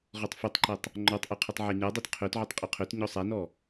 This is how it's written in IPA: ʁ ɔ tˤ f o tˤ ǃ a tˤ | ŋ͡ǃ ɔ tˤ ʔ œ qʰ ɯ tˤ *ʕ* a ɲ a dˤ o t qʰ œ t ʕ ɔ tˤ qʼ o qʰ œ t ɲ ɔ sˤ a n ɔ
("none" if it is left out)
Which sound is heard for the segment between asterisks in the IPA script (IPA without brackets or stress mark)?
ʕ